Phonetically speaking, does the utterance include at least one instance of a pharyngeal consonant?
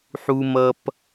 yes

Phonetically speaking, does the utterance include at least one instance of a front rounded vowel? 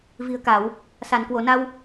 no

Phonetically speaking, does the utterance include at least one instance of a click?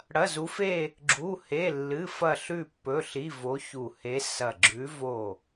yes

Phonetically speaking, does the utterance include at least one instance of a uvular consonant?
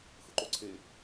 no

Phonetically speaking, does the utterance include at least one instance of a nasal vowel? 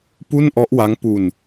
no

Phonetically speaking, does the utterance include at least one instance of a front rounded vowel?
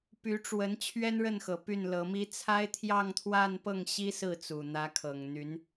yes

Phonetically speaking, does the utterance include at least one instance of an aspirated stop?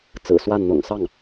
no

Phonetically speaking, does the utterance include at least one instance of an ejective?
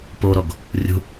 no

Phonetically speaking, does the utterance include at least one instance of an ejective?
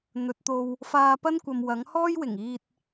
no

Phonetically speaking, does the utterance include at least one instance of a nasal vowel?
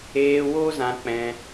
yes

